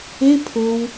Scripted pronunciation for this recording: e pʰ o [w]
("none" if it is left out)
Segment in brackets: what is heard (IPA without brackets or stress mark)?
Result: w